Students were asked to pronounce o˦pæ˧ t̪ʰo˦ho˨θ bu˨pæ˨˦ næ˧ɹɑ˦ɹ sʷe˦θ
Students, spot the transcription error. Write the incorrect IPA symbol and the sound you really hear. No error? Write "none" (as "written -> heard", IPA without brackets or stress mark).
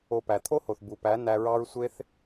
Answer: none